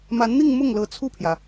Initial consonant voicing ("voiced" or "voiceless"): voiced